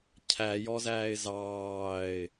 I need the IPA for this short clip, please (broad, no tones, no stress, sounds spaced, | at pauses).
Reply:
cʰ æ j ɔ z æː ɪ̯ z ɑː ɪ̯